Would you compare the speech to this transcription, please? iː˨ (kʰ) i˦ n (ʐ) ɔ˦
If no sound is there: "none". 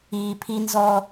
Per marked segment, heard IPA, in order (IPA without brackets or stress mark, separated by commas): pʰ, z